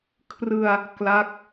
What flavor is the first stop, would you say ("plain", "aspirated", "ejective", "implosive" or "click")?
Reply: aspirated